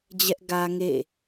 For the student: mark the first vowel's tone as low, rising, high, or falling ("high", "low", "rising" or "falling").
high